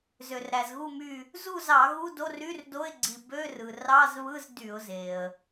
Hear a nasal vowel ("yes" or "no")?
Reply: no